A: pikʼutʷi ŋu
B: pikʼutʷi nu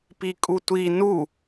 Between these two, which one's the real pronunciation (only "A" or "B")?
B